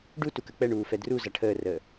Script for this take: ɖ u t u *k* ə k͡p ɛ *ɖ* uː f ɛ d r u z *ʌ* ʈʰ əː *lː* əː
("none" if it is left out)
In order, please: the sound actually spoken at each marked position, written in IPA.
k, ɳ, ʌ, r

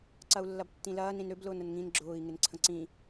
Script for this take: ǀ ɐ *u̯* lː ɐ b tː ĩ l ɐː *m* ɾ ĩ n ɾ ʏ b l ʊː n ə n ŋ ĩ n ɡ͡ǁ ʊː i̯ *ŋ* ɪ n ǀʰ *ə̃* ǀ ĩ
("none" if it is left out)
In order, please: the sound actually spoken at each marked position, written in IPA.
u̯, n, ŋ, ə̃

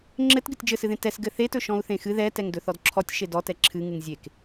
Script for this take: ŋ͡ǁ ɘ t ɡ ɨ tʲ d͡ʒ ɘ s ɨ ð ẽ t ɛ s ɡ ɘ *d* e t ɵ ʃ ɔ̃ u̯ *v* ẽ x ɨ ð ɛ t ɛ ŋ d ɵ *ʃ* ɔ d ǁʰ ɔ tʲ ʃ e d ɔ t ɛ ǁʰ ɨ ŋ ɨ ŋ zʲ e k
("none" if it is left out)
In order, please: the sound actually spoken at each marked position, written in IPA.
θ, θ, θ

